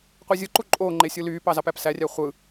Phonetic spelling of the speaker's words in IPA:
qʷ i zʲ ɯ ǃ u ǃʼ oː ŋ͡ǃ e sʲ ɯ l yː p ɑ z ɑ p æ p s æ rʲ æ χʷ ɯ

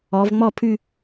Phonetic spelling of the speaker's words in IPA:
ɔ˩˧ v ŋ͡m ɔ˥˧ pʰ ʉ˥˧

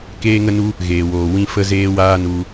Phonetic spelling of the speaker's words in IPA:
k eː˦ ŋ ə˦ n u˦ | ɣ eː˨ w oː˨ w ĩ˦ f ə˦ z eː˦ w aː˦ n u˧

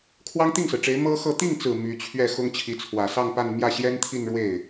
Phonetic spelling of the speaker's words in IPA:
kʰ w ɑ˥ ŋ t̪ i˥˩ ŋ s ɹ̩˩ ʈ͡ʂ e˧˥ ɪ̯ m ɤ˥ x ɤ˥˧ t̪ i˥˩ ŋ t͡s ɹ̩˨˩ m y˧˥ t͡ɕʰ ɥ ɛ˥˩ x ʊ˥ ŋ t͡ɕʰ i˧˥ t͡sʰ w ä˨˩ s ɑ˥˧ ŋ p a˥˧ n m j ä˥˩ ɕ j ɛ˥ n t̪ʰ i˥˧ n ɻ w e˥˩ ɪ̯

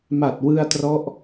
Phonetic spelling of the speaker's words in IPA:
m a˨˩ t̚ w ɯ˧ a̯ t r ɔ˦˥ ʔ

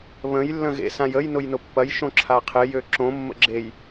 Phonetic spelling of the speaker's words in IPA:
β ə̃ j lː ə̃ ɣ ḛ s ã j ə j n ʊ j n ʊ pː ɐ j ʃ õ ǁʰ a qʰ ɪ j ø ǁ õ mː ə̰ ɡ͡ǁ e j

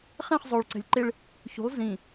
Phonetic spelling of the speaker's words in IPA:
χ ɛ̃ χ zˤ o ɭ ǀ ɛ̤ lʲ ǃ e ɭ | ç ṳ lˠ z ĩ

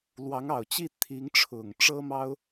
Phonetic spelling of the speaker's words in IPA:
l w ɑ˧˥ ŋ ɑ˨˩ ʊ̯ t͡ɕ i˥˩ t̪ʰ i˧˥ ŋ ʈ͡ʂʰ ʊ˨˩ ŋ ʈ͡ʂ ɤ˥ m ɑ˥ ʊ̯

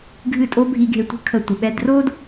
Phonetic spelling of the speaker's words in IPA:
ɡʱ ɨ˥˩ tʼ o˥ bʱ i˧ ɡʱ e˧ tʷ ə̤˥˩ kʰ ə˧ tʷ ə˩ ɓ ɛ˧ d r o˥ d

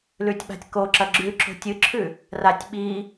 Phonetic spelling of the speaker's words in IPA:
l ʉ tʲ ɓ a̤ tʲ k o ǁ ɐ ɡ͡ǁ ʉ ǁ o̤ tʲ ɨ ǁʰ ʉ | r a tʲ ɓ i

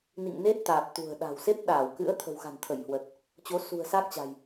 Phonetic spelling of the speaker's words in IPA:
n ḭ˧˨ ŋ n e˦˥ t̚ t̪ aː˨˩ p̚ t̪ ṳ˨˩ ə̯ ɗ a̤˨˩ w s e˦˥ p̚ ɗ aː˧˩ w k ɨ̰˧˥ ə̯ t̪ʰ ə̤˨˩ w x a̤˨˩ n t̪ʰ ə˧˩ j h w ə˨˩ t̚ | t͡ɕ o˨˦ s ṳ˨˩ ə̯ s a˦˥ k̚ t͡ɕ a̤˨˩ j

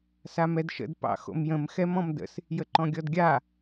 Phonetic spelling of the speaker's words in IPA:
s a m ɛ d ʃ ə̰ d p ɑ̰ x o̰ m j ə̃ m x ɛ m ɔ̃ m d ə̰ s | j ə ǃ ɔ̃ ɡʲ ɔ d ɡʲ a

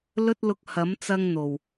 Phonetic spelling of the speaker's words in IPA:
l ɵ˧ t̚ l ʊ˨˥ k̚ h ɐ˨˥ m t͡s ɐ˧ ŋ n̪ o˨˩ w

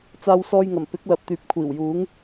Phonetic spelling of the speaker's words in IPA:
t͡s aː˧ w s ɔː˧ j ŋ ɐ˨˩ m p ɪ˨˥ k̚ l ɐ˨ p̚ t̪ yː˨ p̚ kʷʰ iː˨˩ w j uː˨˥ ŋ

